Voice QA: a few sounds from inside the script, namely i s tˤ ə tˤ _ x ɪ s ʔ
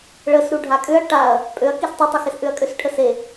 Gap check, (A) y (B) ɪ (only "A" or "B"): B